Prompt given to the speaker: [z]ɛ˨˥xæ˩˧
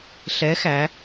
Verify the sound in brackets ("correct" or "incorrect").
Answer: incorrect